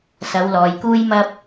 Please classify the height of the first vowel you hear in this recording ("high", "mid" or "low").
low